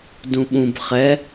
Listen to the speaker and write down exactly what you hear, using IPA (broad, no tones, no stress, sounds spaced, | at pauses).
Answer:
d ũ ɓ ũ b χ ɛ